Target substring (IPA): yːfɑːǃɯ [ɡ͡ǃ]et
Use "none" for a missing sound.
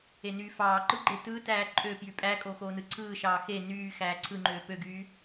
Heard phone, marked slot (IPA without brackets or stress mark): ɡ͡ǃ